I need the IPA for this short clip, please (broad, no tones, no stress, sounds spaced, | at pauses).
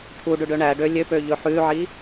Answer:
ʈʰ u ɖ ʉ ɖ ø ɳ æ ɖ ø lʲ ø p ø ʎ ɵ ħ ʉ ʕ i